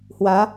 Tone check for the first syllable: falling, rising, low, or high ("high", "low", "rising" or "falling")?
rising